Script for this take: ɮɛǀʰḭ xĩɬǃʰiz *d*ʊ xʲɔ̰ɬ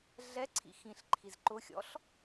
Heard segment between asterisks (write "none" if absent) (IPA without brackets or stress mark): ǃ